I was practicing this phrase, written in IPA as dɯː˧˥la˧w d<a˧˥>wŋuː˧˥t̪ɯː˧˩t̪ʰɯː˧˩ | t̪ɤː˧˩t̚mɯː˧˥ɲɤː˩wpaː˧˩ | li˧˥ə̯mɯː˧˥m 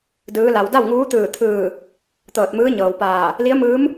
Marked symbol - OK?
no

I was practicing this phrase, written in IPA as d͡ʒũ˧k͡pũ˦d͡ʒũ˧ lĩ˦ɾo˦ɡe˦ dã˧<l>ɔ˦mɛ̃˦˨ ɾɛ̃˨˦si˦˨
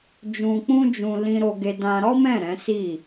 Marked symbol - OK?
no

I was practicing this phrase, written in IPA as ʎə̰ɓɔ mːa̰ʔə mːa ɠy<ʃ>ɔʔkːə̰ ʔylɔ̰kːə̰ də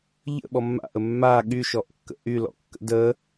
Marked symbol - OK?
yes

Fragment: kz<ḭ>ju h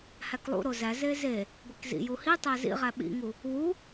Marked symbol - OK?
yes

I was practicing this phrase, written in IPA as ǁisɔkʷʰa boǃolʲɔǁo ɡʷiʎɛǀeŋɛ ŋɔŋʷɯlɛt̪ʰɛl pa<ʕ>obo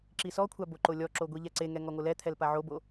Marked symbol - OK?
yes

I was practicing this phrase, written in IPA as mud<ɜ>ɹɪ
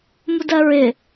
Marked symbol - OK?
yes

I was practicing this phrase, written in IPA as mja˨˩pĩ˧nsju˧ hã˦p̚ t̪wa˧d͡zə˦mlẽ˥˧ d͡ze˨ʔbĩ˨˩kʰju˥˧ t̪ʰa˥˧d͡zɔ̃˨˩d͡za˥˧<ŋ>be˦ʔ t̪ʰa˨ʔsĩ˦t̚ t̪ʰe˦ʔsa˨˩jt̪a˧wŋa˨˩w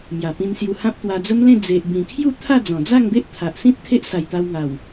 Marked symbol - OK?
yes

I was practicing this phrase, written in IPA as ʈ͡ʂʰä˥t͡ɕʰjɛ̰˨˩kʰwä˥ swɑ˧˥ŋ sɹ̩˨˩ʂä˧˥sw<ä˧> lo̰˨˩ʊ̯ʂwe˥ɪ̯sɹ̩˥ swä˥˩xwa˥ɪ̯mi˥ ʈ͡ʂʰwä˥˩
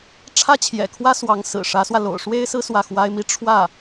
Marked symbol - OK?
yes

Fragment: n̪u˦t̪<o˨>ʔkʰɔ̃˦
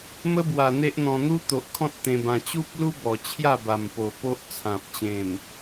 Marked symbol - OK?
yes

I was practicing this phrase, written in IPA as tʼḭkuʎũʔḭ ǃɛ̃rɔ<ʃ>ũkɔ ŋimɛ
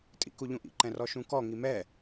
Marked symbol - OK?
yes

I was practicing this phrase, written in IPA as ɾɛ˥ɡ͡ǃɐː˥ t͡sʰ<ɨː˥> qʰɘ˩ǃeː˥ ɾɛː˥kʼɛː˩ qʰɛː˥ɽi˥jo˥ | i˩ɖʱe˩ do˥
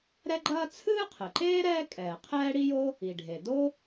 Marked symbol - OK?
yes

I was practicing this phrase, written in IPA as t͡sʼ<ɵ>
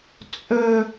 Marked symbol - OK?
yes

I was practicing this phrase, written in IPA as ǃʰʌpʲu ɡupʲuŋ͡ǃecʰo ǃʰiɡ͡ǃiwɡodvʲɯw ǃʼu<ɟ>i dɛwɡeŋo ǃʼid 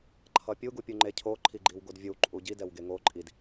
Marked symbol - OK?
yes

